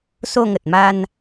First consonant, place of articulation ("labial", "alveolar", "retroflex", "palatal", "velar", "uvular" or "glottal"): alveolar